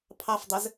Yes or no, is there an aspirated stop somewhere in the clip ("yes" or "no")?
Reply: yes